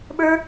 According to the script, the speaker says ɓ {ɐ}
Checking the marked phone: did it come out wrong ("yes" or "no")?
yes